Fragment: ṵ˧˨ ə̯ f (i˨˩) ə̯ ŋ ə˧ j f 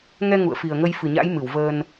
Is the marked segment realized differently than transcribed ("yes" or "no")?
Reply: no